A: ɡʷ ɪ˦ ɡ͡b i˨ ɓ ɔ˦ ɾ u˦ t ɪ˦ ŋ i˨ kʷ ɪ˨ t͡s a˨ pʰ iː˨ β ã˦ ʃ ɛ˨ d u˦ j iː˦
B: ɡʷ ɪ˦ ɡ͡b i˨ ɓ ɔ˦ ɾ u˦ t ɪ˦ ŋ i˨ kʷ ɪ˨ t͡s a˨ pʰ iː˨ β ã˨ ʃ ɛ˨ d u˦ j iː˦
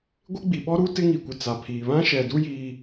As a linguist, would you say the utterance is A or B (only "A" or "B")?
A